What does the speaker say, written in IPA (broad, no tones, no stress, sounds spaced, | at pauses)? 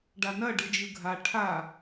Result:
ɖ a n ɐ ɖ ɯ d͡ʒ ɯ ɡʱ a ʈʰ a